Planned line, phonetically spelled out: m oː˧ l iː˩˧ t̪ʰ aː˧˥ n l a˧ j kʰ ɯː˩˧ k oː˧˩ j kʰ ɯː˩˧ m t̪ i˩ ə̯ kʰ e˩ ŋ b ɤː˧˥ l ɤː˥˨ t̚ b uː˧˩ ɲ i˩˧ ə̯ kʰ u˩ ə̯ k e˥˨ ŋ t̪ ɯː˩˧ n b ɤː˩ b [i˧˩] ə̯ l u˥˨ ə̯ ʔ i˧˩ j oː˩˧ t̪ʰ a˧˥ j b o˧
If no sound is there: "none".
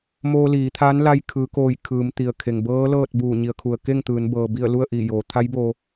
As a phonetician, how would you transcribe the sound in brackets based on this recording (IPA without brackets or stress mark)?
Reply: i˧˩